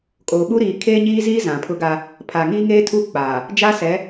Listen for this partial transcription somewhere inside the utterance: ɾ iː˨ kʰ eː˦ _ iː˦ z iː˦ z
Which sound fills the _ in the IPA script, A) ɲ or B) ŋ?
A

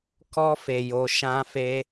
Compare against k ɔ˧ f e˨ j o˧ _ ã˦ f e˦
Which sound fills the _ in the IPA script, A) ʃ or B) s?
A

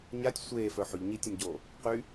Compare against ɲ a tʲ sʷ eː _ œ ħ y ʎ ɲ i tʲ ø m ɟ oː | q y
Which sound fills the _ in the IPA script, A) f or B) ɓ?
A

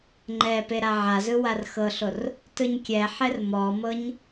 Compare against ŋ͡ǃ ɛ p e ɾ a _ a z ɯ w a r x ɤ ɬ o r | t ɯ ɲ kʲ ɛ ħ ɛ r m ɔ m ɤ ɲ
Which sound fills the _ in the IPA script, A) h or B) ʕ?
B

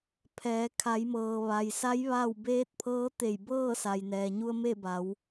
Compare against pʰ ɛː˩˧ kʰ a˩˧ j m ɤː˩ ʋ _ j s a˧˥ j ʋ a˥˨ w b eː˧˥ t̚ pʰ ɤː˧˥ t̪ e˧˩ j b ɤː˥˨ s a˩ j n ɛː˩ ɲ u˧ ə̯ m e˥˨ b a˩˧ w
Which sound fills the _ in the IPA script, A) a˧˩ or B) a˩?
B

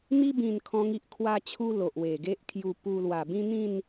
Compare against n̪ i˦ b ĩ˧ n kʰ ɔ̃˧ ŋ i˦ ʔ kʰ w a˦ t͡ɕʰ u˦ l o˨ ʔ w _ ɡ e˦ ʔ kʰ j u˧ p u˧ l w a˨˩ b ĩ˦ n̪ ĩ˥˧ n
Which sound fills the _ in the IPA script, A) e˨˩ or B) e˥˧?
A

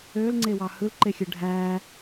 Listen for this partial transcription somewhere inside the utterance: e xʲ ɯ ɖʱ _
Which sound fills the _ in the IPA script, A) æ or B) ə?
A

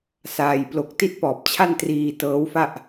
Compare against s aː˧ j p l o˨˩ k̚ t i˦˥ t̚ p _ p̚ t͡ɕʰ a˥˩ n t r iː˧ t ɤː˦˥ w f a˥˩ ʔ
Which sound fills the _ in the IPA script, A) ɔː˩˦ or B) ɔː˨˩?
B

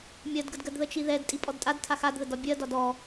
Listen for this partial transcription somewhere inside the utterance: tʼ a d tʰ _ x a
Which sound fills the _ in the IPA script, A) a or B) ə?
A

